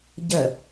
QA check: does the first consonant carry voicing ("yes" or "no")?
yes